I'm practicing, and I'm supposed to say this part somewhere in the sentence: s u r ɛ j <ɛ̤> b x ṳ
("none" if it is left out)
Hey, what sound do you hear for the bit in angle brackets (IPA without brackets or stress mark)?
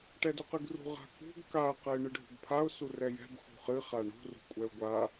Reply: ɛ̤